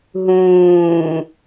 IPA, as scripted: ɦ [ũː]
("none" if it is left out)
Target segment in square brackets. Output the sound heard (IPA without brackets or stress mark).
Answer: ũː